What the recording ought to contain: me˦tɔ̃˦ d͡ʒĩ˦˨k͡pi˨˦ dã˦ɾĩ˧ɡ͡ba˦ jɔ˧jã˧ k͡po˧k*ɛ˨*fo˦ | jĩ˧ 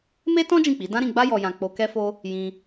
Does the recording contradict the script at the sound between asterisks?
yes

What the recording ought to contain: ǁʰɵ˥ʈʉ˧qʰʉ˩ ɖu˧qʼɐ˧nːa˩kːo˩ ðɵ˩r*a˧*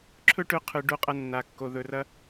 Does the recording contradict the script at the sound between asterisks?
yes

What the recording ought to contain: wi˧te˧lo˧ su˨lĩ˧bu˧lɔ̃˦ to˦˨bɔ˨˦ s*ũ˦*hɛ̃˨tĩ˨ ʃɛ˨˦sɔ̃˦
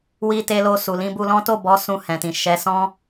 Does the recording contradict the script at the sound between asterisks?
yes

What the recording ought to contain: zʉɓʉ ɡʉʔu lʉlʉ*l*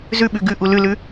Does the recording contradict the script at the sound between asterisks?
yes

